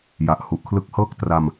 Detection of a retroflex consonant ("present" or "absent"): absent